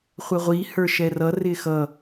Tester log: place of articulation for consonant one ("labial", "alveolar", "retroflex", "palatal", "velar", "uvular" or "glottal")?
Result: uvular